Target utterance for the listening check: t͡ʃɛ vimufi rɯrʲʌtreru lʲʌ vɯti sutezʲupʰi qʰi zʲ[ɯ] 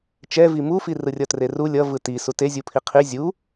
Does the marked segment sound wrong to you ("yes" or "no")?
yes